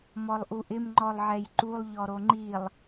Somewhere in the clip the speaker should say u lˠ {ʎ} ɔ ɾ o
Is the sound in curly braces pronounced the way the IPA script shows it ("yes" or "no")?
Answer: yes